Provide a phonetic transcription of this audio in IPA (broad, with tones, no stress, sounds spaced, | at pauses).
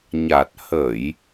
ɲ a˨˩ t̚ h ə˧˩˨ j